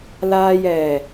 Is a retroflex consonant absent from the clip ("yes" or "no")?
yes